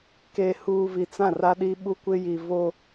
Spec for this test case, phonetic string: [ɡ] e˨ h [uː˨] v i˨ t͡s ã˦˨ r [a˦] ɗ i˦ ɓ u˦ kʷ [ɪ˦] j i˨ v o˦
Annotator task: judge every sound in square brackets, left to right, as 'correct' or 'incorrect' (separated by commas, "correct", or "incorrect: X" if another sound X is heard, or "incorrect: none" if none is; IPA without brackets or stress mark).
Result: incorrect: k, correct, correct, correct